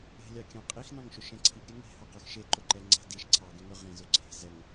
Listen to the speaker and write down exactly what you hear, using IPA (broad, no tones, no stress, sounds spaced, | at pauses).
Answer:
e̤ lʲ ɑ kʲ ɑ̃ qʼ i x n ɑ̃ ŋ ʃ ʊ ʃ ɛ̃ ǀʰ i ɡ ɾʲ ɛ ŋ e̤ h ɑ q ə˞ x ʃ e ǃ ʊ ǃ ɛ ŋ͡ǀ a̤ d i ʃ ǀʰ ɑ ɡ ẽ ŋ ɵ ʁ ẽ z ʊ ǀʰ e̤ z ɛ ŋ